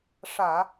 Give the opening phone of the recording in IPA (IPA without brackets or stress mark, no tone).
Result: ʂ